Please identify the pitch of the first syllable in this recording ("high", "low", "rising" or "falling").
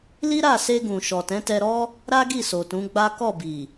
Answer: high